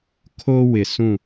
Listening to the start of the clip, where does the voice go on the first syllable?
high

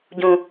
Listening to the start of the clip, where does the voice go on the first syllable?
low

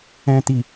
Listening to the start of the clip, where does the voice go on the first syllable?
low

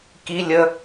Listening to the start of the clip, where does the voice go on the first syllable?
low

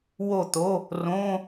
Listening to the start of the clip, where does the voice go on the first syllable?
falling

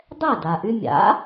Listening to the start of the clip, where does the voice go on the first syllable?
falling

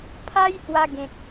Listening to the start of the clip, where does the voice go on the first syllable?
high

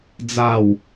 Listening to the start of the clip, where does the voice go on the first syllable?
low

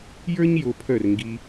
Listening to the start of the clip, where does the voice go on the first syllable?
high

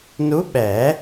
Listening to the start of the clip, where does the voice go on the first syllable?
rising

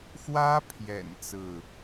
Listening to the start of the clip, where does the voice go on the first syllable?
high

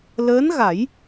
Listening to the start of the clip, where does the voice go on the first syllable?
rising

